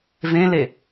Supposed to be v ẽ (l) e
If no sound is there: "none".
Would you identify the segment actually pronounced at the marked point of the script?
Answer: l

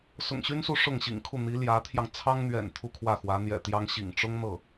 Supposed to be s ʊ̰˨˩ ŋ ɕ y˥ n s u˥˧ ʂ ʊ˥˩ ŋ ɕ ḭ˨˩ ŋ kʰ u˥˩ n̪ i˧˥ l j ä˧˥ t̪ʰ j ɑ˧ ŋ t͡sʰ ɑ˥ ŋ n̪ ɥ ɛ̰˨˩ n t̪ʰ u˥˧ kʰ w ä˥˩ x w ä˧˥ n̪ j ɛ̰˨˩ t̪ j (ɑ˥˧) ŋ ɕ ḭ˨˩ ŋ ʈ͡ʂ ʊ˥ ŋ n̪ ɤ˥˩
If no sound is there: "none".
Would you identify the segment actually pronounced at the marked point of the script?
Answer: ɑ˥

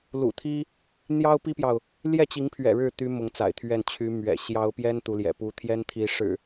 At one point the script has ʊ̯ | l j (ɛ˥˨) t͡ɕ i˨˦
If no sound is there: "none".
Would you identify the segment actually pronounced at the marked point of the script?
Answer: ɛ˥˨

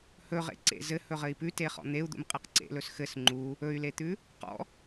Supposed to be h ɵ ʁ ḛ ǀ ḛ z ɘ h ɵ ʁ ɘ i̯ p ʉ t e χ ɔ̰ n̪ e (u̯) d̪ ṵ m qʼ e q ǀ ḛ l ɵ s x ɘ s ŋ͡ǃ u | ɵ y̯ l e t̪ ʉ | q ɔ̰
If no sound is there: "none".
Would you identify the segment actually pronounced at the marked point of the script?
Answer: u̯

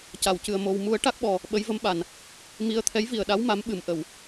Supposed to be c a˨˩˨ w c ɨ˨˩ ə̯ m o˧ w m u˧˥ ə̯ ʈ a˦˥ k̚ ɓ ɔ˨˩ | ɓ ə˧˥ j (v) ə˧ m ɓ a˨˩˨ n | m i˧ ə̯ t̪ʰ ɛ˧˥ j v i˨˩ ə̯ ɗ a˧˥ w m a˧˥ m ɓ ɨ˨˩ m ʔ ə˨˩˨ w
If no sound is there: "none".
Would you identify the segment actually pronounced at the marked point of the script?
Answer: v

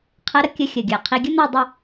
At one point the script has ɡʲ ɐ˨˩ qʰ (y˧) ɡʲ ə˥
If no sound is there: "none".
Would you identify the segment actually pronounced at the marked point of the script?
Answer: i˧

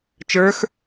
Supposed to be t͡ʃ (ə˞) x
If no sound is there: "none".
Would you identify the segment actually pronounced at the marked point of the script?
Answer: ə˞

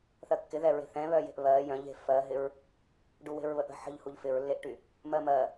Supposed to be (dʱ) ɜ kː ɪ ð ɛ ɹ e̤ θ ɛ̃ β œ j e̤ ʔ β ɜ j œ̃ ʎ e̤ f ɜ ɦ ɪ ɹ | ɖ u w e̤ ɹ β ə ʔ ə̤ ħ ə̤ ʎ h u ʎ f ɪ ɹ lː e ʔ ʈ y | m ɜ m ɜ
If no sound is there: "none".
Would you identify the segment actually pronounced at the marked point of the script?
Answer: θ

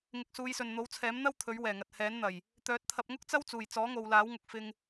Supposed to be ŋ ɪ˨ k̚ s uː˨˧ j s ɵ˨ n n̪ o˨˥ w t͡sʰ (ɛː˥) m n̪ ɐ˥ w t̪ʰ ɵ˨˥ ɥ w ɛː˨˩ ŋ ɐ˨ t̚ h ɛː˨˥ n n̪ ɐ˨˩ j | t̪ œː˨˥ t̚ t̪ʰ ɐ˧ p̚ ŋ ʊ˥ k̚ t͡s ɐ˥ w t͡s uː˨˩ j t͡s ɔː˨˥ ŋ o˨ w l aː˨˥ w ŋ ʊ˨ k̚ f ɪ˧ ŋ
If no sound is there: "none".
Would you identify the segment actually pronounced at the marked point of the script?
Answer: ɛː˨˥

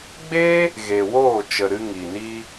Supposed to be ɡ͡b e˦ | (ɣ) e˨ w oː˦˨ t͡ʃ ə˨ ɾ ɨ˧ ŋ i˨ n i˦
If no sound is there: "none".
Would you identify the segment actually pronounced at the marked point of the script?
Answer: ɣ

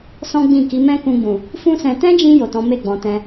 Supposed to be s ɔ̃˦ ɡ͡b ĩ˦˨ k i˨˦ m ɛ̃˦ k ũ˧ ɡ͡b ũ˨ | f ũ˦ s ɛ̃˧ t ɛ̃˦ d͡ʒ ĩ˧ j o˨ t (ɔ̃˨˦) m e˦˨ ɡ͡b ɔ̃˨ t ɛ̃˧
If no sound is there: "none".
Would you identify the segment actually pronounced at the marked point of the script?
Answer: ɔ̃˨˦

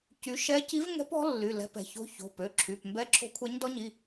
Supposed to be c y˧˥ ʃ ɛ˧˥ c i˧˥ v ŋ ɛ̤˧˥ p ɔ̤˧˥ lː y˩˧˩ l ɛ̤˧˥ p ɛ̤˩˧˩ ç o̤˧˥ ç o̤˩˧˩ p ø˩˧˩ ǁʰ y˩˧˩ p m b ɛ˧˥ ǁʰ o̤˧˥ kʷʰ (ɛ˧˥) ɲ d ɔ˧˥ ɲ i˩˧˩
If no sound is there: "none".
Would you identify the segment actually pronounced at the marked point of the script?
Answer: ɛ˧˥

